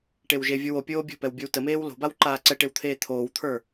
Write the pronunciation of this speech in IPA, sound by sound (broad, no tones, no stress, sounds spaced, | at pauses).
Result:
ʈ e w ʒ e vʲ o w o pʲ oː bʲ o̤ p ɛ w bʲ o w t ə m eː w l o̤ b a w ǃ aː ǀ ɛ ʈ e w t̪ʰ eː t̪ʰ oː w t̪ʰ ə˞